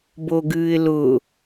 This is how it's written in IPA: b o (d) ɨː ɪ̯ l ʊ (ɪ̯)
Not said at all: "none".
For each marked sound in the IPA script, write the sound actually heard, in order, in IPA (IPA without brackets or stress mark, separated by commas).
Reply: ɡ, none